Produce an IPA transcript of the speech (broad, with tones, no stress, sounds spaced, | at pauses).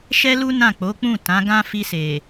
ʃ ɛ˦ l u˦ n ã˦˨ k͡p o˨˦ k͡p ũ˦˨ t ã˨˦ ɡ ã˦ f i˧ s e˨